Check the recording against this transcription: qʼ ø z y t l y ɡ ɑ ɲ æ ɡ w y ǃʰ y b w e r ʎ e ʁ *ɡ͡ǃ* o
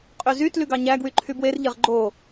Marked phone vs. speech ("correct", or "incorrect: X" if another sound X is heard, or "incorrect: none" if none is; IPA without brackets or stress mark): correct